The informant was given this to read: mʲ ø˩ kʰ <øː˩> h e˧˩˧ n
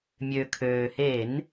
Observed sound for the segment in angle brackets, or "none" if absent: øː˩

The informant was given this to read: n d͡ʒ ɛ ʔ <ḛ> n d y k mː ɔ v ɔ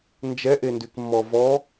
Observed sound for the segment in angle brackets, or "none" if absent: e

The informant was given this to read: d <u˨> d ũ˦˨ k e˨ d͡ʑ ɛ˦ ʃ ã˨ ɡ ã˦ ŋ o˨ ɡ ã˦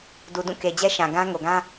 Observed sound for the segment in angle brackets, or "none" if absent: u˨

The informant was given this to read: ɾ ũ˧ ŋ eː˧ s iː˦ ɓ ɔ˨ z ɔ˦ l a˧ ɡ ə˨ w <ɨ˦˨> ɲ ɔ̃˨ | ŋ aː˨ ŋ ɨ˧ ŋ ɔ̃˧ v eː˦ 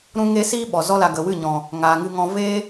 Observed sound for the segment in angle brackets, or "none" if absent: ɨ˦˨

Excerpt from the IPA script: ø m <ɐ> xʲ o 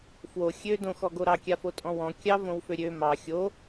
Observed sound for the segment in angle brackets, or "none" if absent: ɑ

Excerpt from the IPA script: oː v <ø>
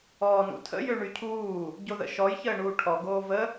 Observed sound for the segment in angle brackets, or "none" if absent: ə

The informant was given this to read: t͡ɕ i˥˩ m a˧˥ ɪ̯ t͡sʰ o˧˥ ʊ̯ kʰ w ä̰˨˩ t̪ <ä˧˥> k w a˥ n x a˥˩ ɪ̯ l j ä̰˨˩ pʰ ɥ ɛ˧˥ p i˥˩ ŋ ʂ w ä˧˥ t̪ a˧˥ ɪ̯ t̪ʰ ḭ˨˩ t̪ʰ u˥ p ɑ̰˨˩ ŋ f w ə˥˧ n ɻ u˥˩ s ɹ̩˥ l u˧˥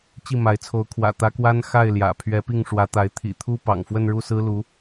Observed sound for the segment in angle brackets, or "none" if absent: ä˧˥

